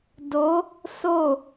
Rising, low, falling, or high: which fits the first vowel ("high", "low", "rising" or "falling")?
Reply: rising